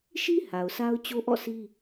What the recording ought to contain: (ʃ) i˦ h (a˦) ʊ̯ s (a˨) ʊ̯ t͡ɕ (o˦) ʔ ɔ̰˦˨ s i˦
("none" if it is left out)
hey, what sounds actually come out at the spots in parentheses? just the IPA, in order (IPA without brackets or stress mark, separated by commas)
ʃ, a˨, a˦, o˦